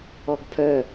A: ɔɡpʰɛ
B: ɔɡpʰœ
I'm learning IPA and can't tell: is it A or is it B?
B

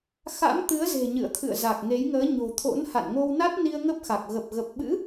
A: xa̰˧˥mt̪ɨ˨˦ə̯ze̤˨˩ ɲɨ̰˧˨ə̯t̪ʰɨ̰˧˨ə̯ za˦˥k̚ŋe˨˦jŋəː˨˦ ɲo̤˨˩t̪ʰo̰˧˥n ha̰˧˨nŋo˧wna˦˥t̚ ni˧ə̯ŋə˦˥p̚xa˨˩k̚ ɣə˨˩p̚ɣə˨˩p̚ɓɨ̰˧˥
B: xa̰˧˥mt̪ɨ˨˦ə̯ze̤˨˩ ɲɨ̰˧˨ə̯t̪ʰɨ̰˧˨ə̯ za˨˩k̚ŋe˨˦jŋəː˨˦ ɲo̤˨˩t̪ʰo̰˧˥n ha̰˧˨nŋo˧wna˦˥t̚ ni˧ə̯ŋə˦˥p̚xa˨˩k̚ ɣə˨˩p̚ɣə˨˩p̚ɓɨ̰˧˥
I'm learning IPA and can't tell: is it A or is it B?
B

